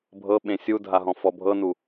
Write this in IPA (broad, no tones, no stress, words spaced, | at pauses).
bʱɤɓẽ sʲudʱaɦɔ̃ fɔbʱɤnu